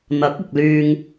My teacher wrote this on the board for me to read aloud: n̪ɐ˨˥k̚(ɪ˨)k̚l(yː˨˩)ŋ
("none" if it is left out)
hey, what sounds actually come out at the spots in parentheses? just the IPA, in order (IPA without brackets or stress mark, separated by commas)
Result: ɪ˨, yː˧